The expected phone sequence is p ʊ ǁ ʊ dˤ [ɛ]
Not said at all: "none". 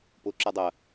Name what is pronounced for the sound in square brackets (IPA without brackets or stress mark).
ɜ